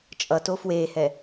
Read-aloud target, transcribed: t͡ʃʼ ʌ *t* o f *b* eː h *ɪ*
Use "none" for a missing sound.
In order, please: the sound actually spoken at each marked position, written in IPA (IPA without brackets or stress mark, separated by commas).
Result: t, w, ɛ